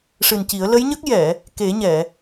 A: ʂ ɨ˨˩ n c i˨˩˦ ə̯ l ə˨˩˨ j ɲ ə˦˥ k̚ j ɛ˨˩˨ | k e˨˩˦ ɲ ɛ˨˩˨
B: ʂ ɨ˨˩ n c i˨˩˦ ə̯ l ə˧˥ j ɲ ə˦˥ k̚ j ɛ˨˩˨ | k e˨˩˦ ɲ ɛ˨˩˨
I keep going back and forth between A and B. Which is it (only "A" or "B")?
B